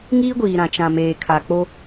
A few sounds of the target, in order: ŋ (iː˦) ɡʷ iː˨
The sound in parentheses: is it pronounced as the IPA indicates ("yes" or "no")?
yes